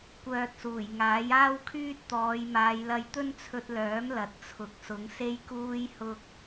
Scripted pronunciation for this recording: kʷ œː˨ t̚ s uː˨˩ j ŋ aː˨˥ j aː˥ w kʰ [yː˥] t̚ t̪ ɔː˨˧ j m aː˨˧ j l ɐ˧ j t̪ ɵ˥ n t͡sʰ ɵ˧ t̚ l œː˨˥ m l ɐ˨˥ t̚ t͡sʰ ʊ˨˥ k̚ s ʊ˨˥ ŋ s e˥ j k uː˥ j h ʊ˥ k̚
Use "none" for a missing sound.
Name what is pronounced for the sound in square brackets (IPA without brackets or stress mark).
yː˥